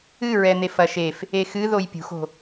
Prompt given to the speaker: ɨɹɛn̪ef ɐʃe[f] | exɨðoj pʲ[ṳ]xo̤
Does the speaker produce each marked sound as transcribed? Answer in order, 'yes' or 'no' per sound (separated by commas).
yes, yes